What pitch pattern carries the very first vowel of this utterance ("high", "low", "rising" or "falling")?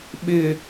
low